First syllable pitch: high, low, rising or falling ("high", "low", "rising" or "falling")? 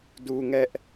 high